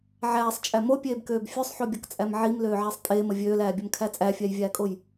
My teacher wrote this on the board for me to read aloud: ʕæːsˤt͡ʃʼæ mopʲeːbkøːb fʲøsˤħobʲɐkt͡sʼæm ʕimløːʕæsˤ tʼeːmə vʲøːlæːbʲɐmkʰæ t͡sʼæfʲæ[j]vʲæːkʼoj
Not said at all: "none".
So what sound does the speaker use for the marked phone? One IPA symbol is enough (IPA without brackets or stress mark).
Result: j